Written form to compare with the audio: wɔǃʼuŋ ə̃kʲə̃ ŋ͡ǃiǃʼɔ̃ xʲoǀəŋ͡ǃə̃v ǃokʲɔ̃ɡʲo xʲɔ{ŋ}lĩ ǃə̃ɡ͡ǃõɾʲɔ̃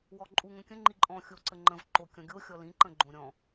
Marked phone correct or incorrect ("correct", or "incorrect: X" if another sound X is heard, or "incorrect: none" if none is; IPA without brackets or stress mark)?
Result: incorrect: none